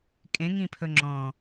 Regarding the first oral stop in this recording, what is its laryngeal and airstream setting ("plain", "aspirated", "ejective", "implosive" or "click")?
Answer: ejective